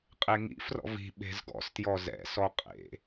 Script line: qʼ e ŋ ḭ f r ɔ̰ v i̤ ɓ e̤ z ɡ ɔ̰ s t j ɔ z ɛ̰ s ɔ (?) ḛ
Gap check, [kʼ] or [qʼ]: qʼ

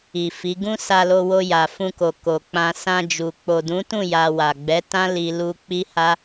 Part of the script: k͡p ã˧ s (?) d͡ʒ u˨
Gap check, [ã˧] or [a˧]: ã˧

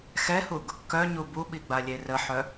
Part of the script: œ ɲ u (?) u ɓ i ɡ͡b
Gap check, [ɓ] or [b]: b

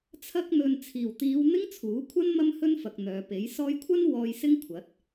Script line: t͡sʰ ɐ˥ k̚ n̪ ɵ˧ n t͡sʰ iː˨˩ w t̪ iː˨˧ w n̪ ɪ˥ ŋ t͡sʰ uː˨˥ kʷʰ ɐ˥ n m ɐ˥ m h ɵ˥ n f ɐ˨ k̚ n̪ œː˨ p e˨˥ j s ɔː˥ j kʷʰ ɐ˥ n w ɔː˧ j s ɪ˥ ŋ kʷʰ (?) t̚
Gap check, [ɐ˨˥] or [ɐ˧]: ɐ˨˥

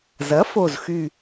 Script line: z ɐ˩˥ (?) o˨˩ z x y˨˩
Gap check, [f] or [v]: f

